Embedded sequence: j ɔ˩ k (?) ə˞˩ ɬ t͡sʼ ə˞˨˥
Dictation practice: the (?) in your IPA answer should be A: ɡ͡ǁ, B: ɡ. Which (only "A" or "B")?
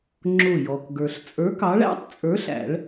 B